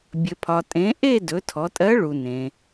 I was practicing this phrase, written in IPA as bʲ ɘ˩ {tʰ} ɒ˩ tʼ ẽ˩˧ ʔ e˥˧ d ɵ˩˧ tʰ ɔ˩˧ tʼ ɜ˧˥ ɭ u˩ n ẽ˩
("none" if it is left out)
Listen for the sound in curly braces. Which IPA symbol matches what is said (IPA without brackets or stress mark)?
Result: pʰ